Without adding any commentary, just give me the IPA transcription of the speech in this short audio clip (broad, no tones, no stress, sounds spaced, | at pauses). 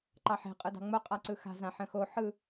ǃ ɑ ħ e̤ qʼ ɯ d ɑ̤ ŋ͡m o qʼ a ǀ ɯ x a̤ z ã ħ ə̃ x o ħ ɯ